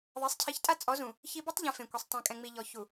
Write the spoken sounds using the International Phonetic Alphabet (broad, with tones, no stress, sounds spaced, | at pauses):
ðˤ e˨˦ sˤ cʰ i˨˦ ç tʼ a˦ t͡sʼ ɔ˨˦ z ũ˨ | ç i˦ b ɔ˦ tˤ ʎ ɛ̃˨ f ẽ˨ kʷ e˨ sˤ tˤ ɛ̃˨ kʼ ɛ̃˨ ŋ͡m i˨ ʎ ɔ˨ ç u˨